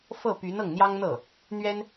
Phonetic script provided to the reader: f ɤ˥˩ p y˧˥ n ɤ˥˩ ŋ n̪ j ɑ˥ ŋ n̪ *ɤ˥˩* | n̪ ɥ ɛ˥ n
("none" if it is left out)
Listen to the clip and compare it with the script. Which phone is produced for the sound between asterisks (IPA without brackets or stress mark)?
ɤ˥˩